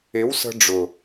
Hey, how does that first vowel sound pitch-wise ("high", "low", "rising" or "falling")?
rising